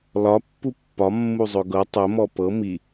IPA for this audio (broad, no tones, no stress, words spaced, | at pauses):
lɒ pːupːɒ mːuzˤɵɡɤ tˤə mɔpɤ mi